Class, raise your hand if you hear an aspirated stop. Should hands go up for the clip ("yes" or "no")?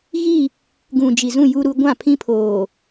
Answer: yes